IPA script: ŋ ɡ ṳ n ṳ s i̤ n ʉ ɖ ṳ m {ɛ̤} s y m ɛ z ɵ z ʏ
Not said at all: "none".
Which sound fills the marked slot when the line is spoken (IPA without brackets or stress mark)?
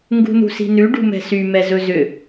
ɛ̤